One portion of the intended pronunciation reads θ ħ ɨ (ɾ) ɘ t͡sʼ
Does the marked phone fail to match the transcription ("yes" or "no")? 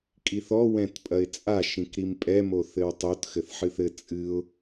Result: yes